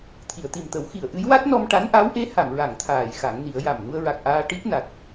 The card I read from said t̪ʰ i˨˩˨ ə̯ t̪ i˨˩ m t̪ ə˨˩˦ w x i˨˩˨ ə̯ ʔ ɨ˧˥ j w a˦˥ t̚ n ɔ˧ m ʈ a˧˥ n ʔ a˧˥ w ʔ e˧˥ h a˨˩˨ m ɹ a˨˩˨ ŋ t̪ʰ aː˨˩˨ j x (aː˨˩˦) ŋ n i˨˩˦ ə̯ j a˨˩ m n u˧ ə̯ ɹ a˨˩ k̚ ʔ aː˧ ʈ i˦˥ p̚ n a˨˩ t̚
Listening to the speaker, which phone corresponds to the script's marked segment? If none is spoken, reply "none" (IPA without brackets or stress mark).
a˨˩˦